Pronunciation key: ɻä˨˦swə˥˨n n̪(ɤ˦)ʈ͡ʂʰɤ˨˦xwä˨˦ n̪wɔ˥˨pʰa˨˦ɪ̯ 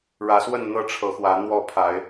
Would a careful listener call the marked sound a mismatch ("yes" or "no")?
no